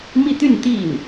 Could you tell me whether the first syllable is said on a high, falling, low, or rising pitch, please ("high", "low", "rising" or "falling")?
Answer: falling